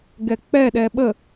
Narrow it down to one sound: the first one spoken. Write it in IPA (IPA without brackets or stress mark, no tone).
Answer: ɡ